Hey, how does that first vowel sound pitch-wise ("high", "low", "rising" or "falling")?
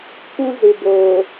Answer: high